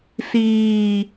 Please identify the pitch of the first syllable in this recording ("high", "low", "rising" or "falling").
low